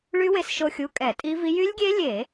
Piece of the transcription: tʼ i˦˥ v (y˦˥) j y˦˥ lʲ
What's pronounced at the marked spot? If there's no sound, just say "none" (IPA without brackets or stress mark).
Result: i˦˥